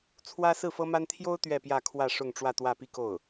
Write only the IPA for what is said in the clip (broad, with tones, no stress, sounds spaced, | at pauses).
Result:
t͡sʰ w ä˥ s ɹ̩˥˩ f ɤ˥ m a˥ n t̪ʰ j o˥ ʊ̯ t̪ ɥ ɛ˥˧ p j ä˥˧ kʰ w ä˥˧ ʂ ʊ˥˧ ŋ ʈ͡ʂ w ä˥˧ t̪ w ä˥˧ p i˥˧ k o˥˩ ʊ̯